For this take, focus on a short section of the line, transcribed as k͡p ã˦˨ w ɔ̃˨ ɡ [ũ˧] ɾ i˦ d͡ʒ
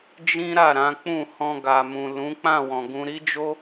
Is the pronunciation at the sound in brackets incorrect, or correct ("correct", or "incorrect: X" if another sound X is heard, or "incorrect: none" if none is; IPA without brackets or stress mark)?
correct